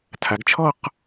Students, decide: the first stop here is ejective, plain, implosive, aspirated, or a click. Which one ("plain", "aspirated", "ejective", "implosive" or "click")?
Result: aspirated